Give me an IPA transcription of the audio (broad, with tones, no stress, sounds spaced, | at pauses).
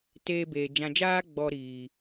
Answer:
t eː˧ b eː˨ d͡ʒ ã˨ d͡ʒ aː˧ ɡ͡b ɔ˨ ɾ iː˨